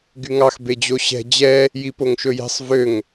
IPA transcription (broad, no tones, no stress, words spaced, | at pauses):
ɡyŋɑx bed͡ʑoɕɛ̤ d͡ʑɛ | jipoŋʃɵjɛ̤sˤ vøŋ